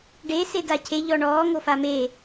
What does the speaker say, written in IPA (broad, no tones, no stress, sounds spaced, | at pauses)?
ɖ e s e d a cʰ e ʎ ɔ ɳ ɔː ŋ o f a m e